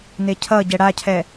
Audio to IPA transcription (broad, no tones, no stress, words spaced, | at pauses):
necʰʌɟɛ ɽacʰɛ